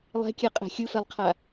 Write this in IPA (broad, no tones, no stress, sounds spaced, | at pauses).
lˠ ɛ̤ kʲ ɛ qʼ ɛ̤ xʲ ɯ f ɛ lˠ qʰ a